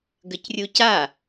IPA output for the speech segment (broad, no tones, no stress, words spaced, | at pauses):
ɡəcrʲuca